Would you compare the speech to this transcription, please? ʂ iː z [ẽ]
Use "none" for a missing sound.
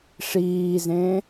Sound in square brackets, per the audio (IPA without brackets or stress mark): ẽ